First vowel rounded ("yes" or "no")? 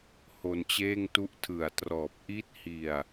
yes